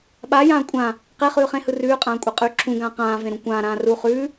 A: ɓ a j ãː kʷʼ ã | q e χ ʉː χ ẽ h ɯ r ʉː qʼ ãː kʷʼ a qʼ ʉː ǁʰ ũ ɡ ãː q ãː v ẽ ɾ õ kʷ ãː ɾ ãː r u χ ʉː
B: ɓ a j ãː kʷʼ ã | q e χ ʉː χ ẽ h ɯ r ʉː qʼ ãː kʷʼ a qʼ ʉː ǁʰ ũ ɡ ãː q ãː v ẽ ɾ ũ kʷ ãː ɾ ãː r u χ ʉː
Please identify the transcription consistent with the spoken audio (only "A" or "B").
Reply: B